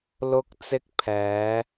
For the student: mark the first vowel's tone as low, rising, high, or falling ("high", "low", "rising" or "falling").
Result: low